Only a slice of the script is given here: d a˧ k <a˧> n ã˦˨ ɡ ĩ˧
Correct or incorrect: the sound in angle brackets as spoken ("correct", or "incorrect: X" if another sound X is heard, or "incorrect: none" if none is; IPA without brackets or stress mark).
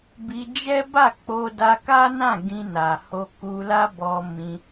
incorrect: a˦